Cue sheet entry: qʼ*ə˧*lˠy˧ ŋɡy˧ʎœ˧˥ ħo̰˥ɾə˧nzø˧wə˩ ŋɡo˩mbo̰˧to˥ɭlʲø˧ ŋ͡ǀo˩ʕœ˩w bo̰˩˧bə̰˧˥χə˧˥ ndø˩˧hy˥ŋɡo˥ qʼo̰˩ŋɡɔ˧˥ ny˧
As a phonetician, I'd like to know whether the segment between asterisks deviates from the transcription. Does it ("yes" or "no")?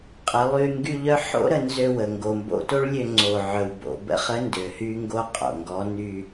yes